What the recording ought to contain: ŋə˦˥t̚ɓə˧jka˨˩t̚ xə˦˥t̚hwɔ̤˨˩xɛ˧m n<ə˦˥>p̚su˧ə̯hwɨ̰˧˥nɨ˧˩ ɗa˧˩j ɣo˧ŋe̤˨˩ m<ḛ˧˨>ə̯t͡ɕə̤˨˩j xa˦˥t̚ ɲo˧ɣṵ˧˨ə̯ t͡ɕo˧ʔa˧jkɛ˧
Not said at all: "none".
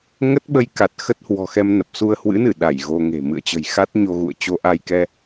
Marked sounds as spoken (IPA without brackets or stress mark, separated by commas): ə˨˩, ɨ̰˧˨